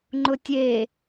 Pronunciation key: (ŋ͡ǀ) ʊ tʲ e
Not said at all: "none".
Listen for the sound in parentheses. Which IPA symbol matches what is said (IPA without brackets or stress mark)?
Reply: ŋ͡ǃ